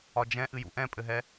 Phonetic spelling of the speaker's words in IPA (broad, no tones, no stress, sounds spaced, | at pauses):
ɒ d͡ʒ ɛ̃ ʔ ɨ j ṵ ʔ ɛ̃ pʼ ɘ ɦ ɛ